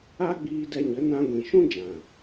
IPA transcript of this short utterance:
a˦ ɡ͡b iː˧ d ɛ˧ ɲ ə˨˦ n ã˧ ɡʷ ĩ˨ ʃ ũ˦ d͡ʒ ã˨

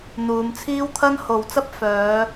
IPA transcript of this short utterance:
n̪ uː˨˧ m t͡sʰ iː˥ w t̪ʰ ɐ˥ n h o˨ w t͡s ɐ˥ p̚ f œː˨˧

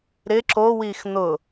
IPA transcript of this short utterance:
ɾ ɪ ǁ o w i x n̪ ʊ

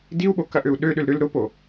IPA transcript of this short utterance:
d i u̯ ɓ o k ɐ ʔ ø u̯ ɗ ø ɗ ʏ l ɾ ʏ l ɾ ʊ p o

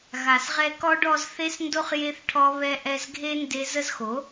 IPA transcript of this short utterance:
ɣ a˨ s ʁ ɛ˧ k ɔ˧ ɖ ɔ˧ z θ e˦ s n d o˦ χ j e˦ θ ʈʰ ɔ˦ β ɛ˧ ʔ ɛ˧ z ɡʱ e˦ n d e˦ z ə˦ z x o˨˦

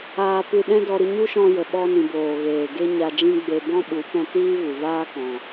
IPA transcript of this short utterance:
aː˧ p ɨ˧ ɗ ɛ̃˦ d ɔ˧ ɾ ɨ˧ ɲ u˦ ʃ ɔ̃˧ j ə˨ ɓ ɔ˧ n ĩ˨ b oː˨ ɣ eː˨ ɡ e˦ ɲ a˧ d͡ʒ ĩ˦ ɡ͡b e˧ b ɔ̃˦ ɓ u˨˦ p ɛ̃˧ t iː˦ v u˨ v aː˦ k ɔ̃˨

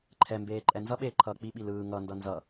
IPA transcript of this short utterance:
ǃʰ ɛ m b eː ǃʼ ɛ n z ʌ ɓ eː ǃʰ ʌː k͡p i ɓ i l ɯː ŋ ʌ n d ʌ n z ʌ

